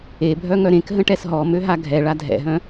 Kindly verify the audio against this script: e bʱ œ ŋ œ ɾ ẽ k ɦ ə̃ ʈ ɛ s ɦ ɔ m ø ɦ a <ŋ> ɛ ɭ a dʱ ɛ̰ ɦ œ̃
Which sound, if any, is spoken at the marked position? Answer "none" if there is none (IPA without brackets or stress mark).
ɡʱ